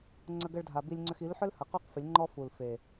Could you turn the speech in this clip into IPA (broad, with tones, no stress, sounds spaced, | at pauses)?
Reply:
ŋ͡ǀ ə˧ ɡ ə˧ ɭ dʱ a˨ b i˧ lʲ ŋ͡ǀ ʏ˧ x i˨˦ l ħ ʏ˦ l h ə˨ q u˦ q f ɪ˨˦ lʲ ŋ͡ǃ ɔ˦ f u˨ l f e˨